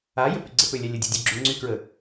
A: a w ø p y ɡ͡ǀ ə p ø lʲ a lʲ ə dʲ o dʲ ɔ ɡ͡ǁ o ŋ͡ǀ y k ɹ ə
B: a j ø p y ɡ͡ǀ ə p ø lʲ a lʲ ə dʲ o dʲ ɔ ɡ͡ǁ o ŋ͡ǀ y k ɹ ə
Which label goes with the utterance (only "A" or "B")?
B